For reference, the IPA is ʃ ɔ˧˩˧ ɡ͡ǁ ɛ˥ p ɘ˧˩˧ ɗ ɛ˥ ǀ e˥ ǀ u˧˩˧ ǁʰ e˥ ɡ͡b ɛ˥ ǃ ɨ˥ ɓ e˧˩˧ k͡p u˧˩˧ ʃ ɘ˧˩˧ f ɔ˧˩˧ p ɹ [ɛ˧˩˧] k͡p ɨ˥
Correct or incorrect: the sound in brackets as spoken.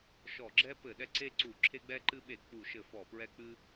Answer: incorrect: ɛ˥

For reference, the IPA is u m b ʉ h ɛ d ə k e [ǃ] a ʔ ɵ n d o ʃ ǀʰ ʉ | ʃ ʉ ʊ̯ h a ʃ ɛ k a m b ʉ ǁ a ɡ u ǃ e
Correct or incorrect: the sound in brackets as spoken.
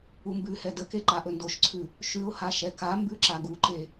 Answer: correct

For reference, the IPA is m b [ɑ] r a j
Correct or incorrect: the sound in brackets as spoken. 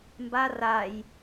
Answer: incorrect: a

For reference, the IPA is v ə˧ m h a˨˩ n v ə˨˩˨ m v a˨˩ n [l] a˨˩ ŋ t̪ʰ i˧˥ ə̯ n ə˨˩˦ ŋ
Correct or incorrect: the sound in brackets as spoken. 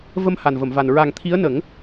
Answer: incorrect: ɹ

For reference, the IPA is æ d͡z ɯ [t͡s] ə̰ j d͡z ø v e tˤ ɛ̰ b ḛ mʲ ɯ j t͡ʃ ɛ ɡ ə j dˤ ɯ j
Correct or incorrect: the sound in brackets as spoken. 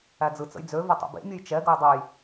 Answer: correct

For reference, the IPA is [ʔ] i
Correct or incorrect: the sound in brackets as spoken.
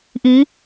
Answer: correct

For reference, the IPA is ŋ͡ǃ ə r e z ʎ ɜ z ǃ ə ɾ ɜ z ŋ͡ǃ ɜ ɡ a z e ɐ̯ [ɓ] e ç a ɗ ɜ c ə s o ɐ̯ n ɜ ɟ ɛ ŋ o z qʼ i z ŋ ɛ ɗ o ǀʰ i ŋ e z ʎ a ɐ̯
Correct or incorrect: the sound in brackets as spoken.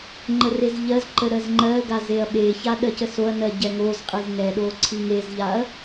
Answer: correct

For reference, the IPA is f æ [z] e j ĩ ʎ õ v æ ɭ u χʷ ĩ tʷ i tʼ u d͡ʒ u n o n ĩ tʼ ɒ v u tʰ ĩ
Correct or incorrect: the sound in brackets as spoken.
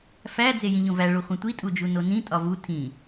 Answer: incorrect: d͡z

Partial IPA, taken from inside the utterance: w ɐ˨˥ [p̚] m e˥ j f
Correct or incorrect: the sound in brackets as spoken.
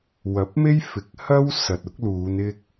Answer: correct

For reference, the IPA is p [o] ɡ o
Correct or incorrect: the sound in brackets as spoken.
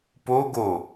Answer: correct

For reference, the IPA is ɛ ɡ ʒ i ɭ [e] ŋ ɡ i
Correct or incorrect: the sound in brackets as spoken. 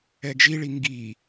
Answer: incorrect: i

